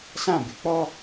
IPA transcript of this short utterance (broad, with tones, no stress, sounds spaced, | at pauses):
s ã˦˨ b ɪ˦ k͡p ɔ˦